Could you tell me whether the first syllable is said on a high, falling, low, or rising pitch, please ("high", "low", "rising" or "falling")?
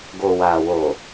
low